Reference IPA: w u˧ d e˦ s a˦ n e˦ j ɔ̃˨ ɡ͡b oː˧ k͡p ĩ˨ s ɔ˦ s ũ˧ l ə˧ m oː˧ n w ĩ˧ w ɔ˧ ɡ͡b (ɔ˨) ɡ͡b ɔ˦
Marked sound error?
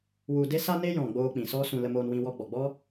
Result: no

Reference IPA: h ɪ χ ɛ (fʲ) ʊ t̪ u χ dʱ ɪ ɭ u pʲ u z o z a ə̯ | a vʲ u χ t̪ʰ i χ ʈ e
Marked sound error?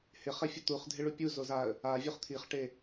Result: no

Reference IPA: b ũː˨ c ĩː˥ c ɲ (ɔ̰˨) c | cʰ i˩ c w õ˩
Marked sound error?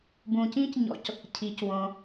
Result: no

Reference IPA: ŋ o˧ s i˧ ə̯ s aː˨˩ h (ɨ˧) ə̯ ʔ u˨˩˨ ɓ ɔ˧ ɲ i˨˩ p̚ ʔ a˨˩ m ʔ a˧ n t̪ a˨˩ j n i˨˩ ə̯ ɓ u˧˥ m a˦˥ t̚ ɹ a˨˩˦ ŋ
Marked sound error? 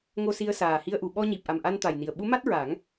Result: yes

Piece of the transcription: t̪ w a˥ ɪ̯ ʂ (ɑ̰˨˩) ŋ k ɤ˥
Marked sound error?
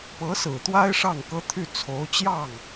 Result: yes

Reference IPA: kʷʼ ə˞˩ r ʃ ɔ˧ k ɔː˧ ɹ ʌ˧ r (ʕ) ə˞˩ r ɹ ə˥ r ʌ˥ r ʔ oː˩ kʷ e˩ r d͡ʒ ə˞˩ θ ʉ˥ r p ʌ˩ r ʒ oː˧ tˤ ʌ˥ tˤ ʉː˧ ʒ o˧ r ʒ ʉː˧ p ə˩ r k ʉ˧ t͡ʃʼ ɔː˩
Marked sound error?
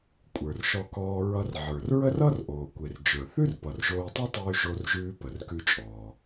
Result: no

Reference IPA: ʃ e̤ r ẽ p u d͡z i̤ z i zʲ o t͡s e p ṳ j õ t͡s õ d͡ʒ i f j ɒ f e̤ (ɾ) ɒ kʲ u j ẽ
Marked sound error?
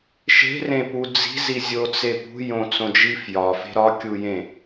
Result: no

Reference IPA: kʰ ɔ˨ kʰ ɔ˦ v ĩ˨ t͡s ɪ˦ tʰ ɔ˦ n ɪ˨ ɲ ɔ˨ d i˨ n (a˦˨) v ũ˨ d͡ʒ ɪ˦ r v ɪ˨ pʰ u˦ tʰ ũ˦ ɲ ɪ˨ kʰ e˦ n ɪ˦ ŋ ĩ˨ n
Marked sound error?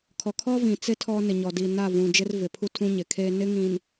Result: no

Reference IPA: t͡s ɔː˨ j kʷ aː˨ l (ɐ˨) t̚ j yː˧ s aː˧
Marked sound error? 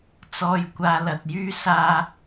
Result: no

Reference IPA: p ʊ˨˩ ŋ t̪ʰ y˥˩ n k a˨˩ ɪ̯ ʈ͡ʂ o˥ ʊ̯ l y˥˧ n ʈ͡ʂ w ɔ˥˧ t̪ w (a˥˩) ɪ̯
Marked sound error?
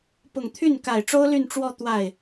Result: no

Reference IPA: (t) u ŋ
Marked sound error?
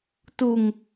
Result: no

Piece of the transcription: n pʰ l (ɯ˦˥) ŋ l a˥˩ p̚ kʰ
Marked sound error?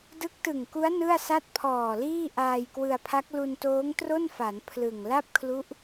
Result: yes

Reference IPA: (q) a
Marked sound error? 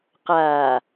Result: no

